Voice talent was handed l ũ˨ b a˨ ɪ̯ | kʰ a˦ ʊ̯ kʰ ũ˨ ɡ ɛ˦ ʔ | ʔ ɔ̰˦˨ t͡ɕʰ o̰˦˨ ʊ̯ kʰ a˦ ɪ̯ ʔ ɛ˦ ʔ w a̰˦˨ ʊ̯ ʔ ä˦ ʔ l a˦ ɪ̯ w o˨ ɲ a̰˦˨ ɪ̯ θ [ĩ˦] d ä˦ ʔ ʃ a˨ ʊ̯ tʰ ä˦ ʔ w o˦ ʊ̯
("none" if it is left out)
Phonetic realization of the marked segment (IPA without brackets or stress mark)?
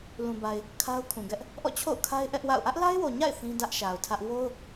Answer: ĩ˦